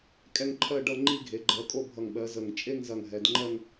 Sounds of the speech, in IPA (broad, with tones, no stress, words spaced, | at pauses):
kʼɛ˥˧ŋǃʰɜ˥˧ɖʌ˥˧ ŋ͡ǃi˥˧ɡʱe˨˦ ɡ͡ǃɜ˨˦kʼo˥˧ bʱʌ˧˩ŋɓɜ˨˦ zə˧˩ŋ t͡ʃʼe˥˧ŋzɐ˧˩ŋ ɦɛ˨˦d ŋ͡ǃɜ˥˧ŋ